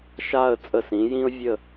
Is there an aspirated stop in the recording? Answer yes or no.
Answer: no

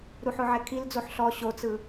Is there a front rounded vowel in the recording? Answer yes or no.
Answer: no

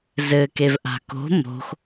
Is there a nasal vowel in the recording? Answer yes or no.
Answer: no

